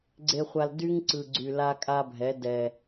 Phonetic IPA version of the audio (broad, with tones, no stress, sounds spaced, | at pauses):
ɡ͡ǀ e˨ χʷ a˨ l d y˦ ŋ ǀ ɯ˨ ɡ͡ǀ y˨ l a˦ kʼ a˦ bʱ ɛ˨˦ d ɛ˨